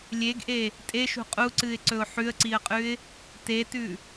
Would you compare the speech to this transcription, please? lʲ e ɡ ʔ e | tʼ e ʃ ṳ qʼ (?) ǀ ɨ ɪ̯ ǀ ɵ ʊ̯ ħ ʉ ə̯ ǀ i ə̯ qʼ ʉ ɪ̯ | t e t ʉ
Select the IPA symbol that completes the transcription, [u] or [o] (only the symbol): u